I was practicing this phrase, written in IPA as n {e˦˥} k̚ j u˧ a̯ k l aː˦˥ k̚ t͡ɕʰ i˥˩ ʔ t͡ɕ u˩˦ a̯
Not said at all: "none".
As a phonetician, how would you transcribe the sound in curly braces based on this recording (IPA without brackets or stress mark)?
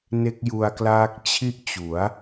e˦˥